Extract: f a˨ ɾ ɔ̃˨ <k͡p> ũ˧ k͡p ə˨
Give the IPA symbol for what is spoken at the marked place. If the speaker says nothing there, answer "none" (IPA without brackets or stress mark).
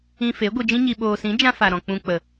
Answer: k͡p